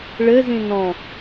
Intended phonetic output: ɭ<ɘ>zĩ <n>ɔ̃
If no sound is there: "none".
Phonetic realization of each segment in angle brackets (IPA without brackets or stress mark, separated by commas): ɘ, n